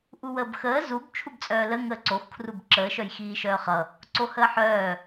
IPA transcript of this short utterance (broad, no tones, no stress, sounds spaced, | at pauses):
ʔ u w əː b x əː z u b t͡ʃʰ u b t͡sʼ œː l ə ŋ əː ǀ o x kʰ r u b ǁ əː ʃ œ j x iː ʃ œː χ ʌ | ǀ o h əː ħ œː